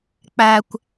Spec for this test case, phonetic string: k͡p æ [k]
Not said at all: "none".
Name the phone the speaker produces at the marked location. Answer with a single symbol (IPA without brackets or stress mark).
kʷ